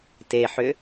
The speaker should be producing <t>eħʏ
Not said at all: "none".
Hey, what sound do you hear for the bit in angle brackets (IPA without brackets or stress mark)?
t